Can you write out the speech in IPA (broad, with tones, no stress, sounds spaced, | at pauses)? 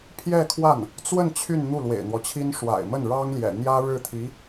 pʰ j ɛ˥˧ kʰ w a˥˩ n | t͡s w ə˥˧ n t͡ɕʰ y˥˧ n n̪ u˥˩ l w ḛ˨˩ ɪ̯ n̪ w ɔ˦ t͡ɕʰ i˥ n ʂ w a̰˨˩ ɪ̯ m ə˥˩ n ɻ ɑ˥ ŋ l j ɛ̰˨˩ n̪ j ä˥ ɻ ɻ̩˥˩ t̪ʰ i˧˥